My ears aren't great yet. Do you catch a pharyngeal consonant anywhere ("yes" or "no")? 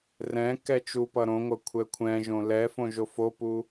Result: no